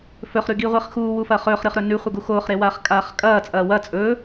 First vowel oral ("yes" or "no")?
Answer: yes